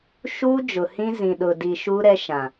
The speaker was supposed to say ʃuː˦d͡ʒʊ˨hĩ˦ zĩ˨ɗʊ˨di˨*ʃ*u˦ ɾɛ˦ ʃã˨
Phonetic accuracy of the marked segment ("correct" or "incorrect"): correct